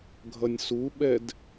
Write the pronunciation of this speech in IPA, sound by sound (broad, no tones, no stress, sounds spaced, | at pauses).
ɡʱ ʌ nʲ s u ɓ ɛ d